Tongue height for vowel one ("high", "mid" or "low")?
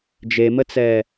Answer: mid